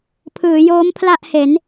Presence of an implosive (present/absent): absent